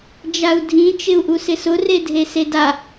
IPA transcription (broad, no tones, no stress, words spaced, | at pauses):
d͡ʒau̯dʱĩ t͡ʃɪu̯ʔusɪsʊ redʱeseda